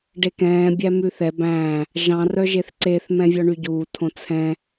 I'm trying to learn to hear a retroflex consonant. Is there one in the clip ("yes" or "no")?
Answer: yes